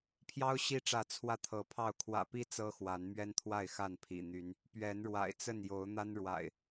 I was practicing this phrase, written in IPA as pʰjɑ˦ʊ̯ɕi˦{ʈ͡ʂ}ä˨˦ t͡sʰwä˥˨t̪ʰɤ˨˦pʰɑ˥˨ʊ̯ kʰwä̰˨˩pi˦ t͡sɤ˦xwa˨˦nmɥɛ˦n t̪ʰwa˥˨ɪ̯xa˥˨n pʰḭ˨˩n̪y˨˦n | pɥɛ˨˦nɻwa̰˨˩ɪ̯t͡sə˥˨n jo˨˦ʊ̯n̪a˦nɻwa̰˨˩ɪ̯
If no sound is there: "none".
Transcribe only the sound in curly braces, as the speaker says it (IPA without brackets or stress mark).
ʈ͡ʂ